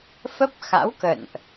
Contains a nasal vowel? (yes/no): no